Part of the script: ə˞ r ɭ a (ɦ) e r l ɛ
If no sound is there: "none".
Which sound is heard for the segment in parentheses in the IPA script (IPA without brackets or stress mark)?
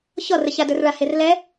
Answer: h